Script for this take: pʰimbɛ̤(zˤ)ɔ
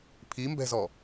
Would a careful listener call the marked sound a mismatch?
yes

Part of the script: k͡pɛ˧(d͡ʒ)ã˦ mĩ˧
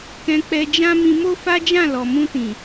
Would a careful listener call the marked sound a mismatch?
no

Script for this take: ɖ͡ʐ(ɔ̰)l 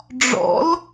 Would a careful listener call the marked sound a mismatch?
no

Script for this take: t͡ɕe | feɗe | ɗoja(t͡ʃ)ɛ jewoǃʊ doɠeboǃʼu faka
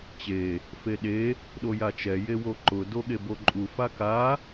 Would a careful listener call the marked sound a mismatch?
no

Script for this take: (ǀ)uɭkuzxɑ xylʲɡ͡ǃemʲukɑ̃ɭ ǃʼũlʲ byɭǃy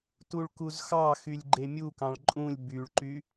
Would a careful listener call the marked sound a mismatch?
yes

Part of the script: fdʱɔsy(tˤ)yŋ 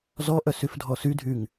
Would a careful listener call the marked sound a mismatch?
yes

